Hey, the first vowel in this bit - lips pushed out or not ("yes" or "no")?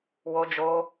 yes